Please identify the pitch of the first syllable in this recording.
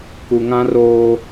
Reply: low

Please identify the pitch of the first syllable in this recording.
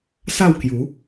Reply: falling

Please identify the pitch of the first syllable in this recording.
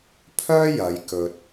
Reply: high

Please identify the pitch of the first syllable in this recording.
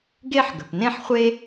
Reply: high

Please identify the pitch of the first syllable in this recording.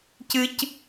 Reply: high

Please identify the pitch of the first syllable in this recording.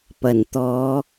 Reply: low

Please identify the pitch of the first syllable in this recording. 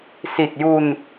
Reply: low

